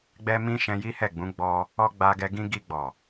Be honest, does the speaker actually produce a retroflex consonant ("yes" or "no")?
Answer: no